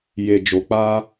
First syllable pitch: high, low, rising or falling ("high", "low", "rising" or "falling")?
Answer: low